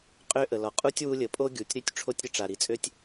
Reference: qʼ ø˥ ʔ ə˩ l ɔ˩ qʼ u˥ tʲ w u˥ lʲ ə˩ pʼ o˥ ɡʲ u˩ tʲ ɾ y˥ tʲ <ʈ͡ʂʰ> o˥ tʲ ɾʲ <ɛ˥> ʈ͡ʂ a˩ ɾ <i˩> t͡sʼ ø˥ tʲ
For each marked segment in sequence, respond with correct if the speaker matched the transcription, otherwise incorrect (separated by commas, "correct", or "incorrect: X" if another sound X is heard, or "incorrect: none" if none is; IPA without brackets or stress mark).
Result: correct, incorrect: ə˥, correct